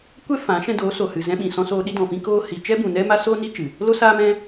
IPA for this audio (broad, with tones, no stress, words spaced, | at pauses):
kʷɛ˦fã˨˦ ʃɛ̃˧do˨˦ so˨hɨ˨zɛ̃˧ ɓĩ˨ sɔ̃˧soː˧ ɗi˧dɔ̃˨fĩ˧ koː˧hi˨ t͡ʃɛ˦bũ˨nɛ˦ma˦ soː˦ni˦t͡ʃɨ˨ | lo˦saː˦mɛ̃˦